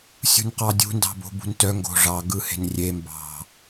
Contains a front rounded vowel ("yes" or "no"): yes